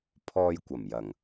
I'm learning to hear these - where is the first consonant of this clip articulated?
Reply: lips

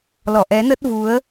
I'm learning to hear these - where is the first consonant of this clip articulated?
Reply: tongue tip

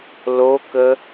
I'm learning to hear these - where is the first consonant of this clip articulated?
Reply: tongue tip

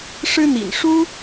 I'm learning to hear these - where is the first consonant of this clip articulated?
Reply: retroflex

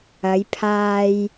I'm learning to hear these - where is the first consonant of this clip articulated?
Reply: palate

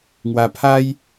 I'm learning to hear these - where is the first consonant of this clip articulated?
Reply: velum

